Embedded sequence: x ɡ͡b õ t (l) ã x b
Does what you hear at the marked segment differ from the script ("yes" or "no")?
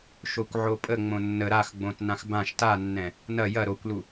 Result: yes